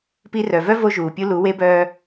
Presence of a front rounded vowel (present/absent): present